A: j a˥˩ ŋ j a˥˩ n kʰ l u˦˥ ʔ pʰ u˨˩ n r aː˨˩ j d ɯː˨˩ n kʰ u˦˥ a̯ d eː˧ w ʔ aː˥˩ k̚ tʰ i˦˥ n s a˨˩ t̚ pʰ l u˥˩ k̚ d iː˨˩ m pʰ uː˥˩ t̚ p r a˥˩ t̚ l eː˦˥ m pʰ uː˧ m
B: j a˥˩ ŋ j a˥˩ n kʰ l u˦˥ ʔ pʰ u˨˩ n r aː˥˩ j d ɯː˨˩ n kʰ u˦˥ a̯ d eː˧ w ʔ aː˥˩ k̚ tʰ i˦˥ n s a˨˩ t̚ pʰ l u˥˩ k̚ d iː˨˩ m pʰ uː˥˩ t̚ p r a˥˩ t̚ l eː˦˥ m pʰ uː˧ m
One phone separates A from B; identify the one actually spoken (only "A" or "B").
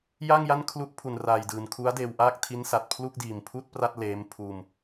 A